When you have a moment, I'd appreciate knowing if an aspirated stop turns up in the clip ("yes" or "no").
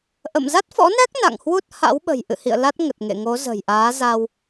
no